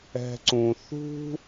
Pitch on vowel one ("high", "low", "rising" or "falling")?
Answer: low